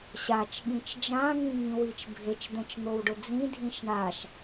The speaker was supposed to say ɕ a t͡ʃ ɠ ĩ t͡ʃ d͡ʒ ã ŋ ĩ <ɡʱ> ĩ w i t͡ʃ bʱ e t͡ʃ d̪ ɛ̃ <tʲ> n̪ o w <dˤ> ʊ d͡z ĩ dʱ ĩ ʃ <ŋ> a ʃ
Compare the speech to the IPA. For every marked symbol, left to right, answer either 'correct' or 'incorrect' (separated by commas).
incorrect, incorrect, incorrect, incorrect